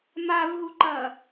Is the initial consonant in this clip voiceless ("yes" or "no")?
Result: no